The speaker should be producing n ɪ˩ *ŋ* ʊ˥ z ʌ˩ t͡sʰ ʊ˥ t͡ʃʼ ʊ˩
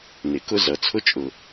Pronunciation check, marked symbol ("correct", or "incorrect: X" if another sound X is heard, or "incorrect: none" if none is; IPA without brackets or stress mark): incorrect: k